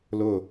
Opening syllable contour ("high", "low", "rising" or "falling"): falling